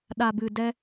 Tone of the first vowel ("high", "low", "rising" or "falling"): low